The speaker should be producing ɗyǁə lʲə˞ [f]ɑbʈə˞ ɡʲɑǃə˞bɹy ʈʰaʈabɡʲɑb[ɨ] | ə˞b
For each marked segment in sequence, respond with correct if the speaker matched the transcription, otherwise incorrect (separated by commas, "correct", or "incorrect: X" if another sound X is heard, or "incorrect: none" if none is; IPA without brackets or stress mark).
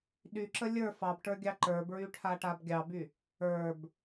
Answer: correct, incorrect: y